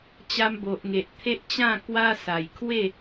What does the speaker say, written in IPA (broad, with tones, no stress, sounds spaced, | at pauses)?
t͡ɕ a˧ m b o˨ ʔ ŋ e˨ ʔ t̪ʰ e˦ ʔ t͡ɕ ã˥˧ k w a˦ s a˨˩ j kʰ w e˥˧